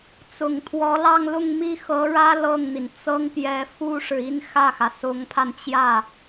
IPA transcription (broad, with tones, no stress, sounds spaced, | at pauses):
t͡s ʊ˨˩ ŋ t̪ʰ w ɔ˧˥ l ɑ˥˧ ŋ l ʊ˥˧ ŋ m i˥˩ x ɤ˧˥ ɻ ä˥ l ɤ˥˩ ŋ n̪ i˩ n t͡s ɤ˥ ŋ p j ɛ˧˥ f u˥ ʂ ɻ̩˨ i˥ n x ä˥˩ x ä˩ s ʊ˧˥ ŋ pʰ a˧ n t͡ɕ j ä˥˩